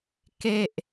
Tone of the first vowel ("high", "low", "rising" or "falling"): falling